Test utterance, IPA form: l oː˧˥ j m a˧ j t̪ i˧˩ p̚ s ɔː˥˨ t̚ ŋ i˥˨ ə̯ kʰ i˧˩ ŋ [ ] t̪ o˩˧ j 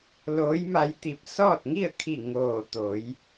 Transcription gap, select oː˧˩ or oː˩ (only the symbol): oː˧˩